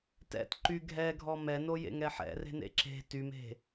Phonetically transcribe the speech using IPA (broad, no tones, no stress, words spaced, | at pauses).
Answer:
tɛ̰t ǃy ɡʱɛɡʱɔ mɛno jḛŋɛħɛ̰re̤ nḛǁe̤ tyme̤